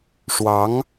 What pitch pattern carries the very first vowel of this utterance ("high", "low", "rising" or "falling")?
rising